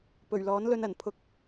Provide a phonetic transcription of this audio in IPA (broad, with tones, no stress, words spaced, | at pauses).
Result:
pɵ˨˩ɥlɔː˨˥nlɵ˧nɐ˨˩n pʰʊ˧k̚